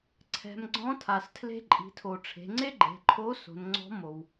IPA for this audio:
ǀʰɛ̤˩˧mɡ͡ǀɔ̃˧˥tʰa˩s tʰle̤˧ǃʼi̤˩˧tʰo˩ ʈ͡ʂʰe̤˩˧ŋ͡ǀe˥ ɡ͡ǃe̤˩˧ǃʰo˧˥ so̤˩˧nŋ͡ǀɔ̤˧˥ mo˩w

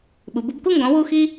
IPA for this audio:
ɓu˩˧bu˨˥bku˥˧ ŋɡɔ̃˨˥ wu˥˧xi˥

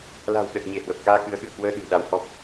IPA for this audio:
la̤˨˩w ɗə˨˩t̚ ɲe˧˩hwə˨˩p̚kaː˧ kɨ˨˦ə̯xɨ̰˧˨ə̯kwəː˧ɗɨ̤˨˩ ɗa˧whɔ˦˥p̚

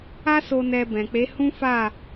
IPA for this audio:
a˦so˧ nɛ˧bɛ̃˨k͡pe˨˦ hũ˦fa˦˨

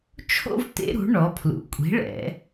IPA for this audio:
t͡ʃʰo̰˥˧v t̪ḛ˦˥ɾṳ˩˥ ɳɔ˩˧ pʰlṵ˩˧kʷʼi̤˩˥ɭɛ̰˩˧

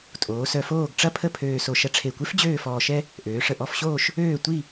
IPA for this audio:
tʼoː˩˧ sœ˧ foː˥˧ɡʈ͡ʂɐ˥pʰə˥˧ pʰøː˧so˧ ʃɐ˧ʈ͡ʂʰe˧˩kʷe˥f d͡ʑøː˥˧fɔː˧ʃɛ˥ | ʔøː˩˧ʂə˧˩ʔɔ˥˧fɕoː˥˧ʃ | øː˥˧ tʷi˥˧

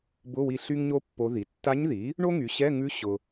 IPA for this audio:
bʊ˧˥˧wi˦˨ ɬy˥ŋɲo˥pːo˧˥ði˩˥ tːa˧˥ɲði˩˥ | ɳo˥ŋy˩˥ɕɛ˧˥˧ ŋʉ˧˥ ɕʊ˨

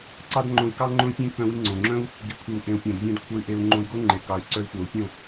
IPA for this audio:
ǀɑ˦dŋ͡ǃõ˧i̯kɑ˦ ŋ͡ǃõ˦i̯pʲẽ˦ kœ̃˧wi˧ ŋ͡ǀõ˨ŋ͡ǁœ̃˦u̯ | ɡi˨kʷʰi˨u̯ʔẽ˨u̯ pʲõ˨dvʲœ̃˧d kʷʰe˧y̯ʔe˧u̯ ŋ͡ǃõ˧i̯ɡo˦ŋ͡ǃe˨ kɑ˨y̯ǀœ˧i̯xʷœ˨u̯ pʲõ˦˨

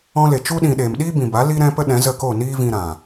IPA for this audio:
ɔ̃˧le˨ t͡ʃu˧ɗĩ˨ ɗeː˨mɗiː˦bĩ˨ba˨˦ li˦ɾɛ̃˦ pə˦ɗɛ̃˨˦zə˦˨ko˦˨ niː˦vĩ˧ɾã˨

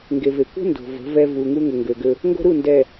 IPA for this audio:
ŋɡe˨ve˨ kʷə̤˦ ndo̤˨və̤˨˦vɛ˦ vu˨ŋu˦ ŋʊ˨ŋɡø˨ɡø˦ | ŋɡo̤˦ɾu˦˨ndɛ˨

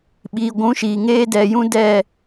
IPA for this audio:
ɓiː˨ɡʷũ˨˦ʃiː˨ ŋeː˦dɛ˨ jũ˦dɛ˦˨

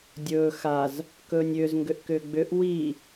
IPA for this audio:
dʲɵː xaz | kɵːnʲʏːz ŋɡʏʔkʏːɡ͡bʏʔ wi

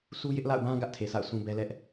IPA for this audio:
su˦jɪ˦ʔla̰˦˨ʊ̯bã˦ ɡä˦ʔtʰe˨sʰa̰˦˨ʊ̯ sʰũ˦bɛ˦lɛ˦ʔ

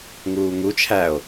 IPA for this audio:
ŋuːŋut͡ʃʰæo̯

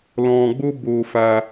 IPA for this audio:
lɔ̃˧ɡ͡bo˦ bo˧fa˧

